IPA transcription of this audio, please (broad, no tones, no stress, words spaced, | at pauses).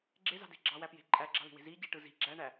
ɡ͡ǁezɑ̤de̤ ɡ͡ǁɑwæpje̤ ǃʼæɡ͡ǁɑ̤li̤we̤ zi ɟeʈɯ zi̤ ɡ͡ǁæɳæ